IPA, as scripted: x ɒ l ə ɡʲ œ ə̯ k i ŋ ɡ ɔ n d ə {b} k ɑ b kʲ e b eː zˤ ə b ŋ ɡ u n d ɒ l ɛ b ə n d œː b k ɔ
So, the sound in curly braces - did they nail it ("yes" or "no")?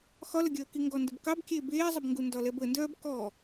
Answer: yes